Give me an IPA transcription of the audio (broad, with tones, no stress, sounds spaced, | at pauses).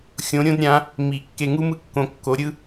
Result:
xʲ õ˨˥ ɾʲ õ˥ d ɾʲ ã˨˥ | m i˨˩˦ kː e˧ ŋ u˥ m ɯ˥ kː õ˧ kː o˨˥ ɾʲ ɯ˥